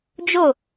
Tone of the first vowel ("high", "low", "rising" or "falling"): falling